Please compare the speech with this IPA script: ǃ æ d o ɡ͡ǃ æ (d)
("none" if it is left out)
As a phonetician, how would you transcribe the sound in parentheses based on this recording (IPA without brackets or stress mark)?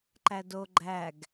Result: ɡ